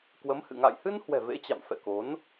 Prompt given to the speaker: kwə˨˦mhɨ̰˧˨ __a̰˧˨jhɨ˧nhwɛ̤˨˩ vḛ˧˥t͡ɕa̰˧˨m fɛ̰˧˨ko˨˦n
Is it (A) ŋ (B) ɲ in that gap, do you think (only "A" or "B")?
A